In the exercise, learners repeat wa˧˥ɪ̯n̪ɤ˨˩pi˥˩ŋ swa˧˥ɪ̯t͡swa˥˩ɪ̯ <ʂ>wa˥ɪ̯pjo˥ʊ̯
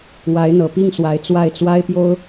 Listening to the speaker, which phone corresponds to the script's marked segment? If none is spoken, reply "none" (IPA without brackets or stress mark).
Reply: t͡s